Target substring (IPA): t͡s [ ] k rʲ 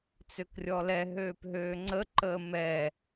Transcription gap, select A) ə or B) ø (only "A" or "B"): B